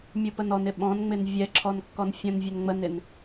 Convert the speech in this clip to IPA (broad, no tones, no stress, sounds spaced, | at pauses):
mʲ u p ə n ɔ n ɪ ɓ ɔ̃ n ŋ͡m ɪ n vʲ ɛ ǁʰ ɔ n kː ɔ n fʲ ə̃ n vʲ ə n ŋ͡m ə n ɪ n